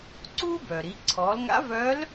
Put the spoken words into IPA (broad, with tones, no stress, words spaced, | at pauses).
ǀuː˥bœ˩ɾi˩˧ ǀʰɔː˩˧lŋa̰˧˥vœː˧˥l